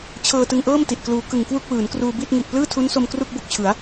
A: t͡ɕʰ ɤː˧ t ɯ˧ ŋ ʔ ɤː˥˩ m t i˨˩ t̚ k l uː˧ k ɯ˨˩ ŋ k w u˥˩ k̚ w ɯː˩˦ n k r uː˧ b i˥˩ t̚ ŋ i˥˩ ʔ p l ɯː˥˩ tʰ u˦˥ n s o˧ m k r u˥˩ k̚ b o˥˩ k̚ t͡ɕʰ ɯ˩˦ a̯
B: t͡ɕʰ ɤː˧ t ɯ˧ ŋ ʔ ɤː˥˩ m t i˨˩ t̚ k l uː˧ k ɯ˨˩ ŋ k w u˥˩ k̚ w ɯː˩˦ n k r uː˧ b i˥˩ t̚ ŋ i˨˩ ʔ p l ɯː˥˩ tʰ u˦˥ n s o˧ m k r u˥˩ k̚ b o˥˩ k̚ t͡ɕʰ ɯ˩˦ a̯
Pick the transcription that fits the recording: B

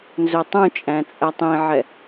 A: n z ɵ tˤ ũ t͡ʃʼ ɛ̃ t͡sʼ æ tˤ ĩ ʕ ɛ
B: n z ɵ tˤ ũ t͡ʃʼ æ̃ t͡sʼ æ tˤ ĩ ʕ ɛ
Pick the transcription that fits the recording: B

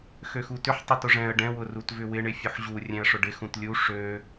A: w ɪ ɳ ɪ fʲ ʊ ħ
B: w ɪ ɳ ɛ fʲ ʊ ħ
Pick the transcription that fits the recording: A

